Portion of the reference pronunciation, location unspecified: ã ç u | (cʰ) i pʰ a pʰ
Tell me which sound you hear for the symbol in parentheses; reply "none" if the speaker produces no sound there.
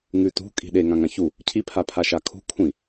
cʰ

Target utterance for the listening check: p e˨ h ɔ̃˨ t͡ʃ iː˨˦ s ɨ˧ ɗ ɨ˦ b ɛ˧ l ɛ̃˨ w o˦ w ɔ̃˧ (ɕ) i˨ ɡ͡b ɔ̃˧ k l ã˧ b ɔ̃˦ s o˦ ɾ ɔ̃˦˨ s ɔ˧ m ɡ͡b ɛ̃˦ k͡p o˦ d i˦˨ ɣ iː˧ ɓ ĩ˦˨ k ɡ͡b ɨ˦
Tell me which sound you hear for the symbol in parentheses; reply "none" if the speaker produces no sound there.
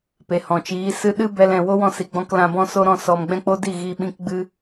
s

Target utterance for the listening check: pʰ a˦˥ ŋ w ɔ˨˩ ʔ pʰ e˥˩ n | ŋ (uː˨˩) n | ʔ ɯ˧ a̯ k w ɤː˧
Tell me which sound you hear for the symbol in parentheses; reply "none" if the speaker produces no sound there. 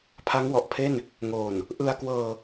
oː˨˩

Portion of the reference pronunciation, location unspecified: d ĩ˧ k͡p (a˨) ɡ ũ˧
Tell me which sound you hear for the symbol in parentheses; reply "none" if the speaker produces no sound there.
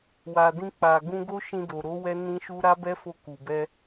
a˨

